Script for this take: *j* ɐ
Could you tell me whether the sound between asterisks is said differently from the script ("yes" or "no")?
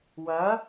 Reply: yes